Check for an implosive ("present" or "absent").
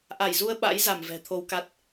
present